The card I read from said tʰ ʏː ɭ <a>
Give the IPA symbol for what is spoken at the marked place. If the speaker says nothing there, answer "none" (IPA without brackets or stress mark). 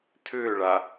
a